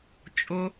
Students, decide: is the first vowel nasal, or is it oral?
oral